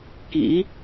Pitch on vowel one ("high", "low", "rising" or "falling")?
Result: rising